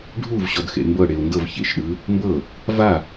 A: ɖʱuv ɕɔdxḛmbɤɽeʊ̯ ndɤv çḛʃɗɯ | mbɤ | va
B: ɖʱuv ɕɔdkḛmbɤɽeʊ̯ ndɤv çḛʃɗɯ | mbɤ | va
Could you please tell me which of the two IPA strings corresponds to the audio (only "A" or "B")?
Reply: A